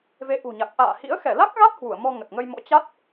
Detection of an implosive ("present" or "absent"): absent